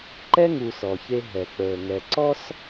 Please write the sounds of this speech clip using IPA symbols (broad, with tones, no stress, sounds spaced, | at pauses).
ǃ ɛ˦ ŋ uː˨ s ɔ˨ ç e˦ ɦ ɛ˨ k͡p əː˨ ŋ ɛ˨ ǀ ɔ˦ s